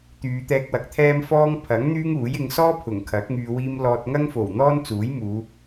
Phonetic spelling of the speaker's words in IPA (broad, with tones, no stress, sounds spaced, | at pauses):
t̪ yː˨˧ t̪ ɛː˧ k̚ w ɐ˨˥ k̚ t̪ʰ ɛː˥ m f ɔː˥ ŋ pʰ ɐ˨˥ ŋ n̪ yː˥ ŋ uː˨˥ j ɪ˨˧ ŋ s ɔː˥ pʰ ʊ˨˩ ŋ kʰ ɐ˨˥ k̚ ŋ yː˨ w iː˧ m l ɔː˧ t̚ ŋ ɐ˥ ŋ f o˨˩ w n̪ ɔː˥ n t͡s uː˨˥ j m uː˨˧